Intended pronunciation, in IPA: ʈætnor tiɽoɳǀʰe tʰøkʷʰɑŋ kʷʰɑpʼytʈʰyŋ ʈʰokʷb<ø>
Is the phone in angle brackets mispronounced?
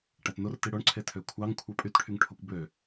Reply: no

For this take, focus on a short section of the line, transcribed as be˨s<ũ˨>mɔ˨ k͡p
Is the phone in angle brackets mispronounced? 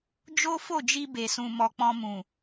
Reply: no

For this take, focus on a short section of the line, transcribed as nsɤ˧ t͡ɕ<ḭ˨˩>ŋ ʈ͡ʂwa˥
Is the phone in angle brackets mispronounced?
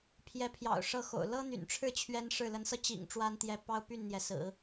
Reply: no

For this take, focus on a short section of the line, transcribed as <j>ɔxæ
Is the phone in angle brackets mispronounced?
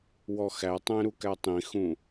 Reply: yes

